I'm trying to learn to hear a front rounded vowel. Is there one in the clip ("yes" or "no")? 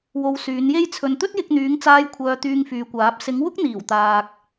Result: yes